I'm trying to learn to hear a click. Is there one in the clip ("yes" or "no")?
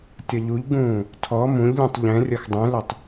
no